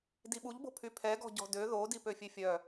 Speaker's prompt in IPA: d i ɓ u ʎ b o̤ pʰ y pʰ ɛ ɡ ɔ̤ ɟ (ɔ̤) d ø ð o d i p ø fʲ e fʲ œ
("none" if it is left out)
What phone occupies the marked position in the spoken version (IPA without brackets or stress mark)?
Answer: ɔ̤